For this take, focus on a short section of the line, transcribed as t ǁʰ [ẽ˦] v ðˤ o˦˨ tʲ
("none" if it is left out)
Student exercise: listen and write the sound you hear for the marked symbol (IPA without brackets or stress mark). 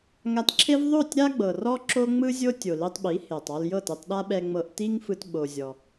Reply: e˦